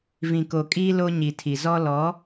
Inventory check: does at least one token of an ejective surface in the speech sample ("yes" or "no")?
yes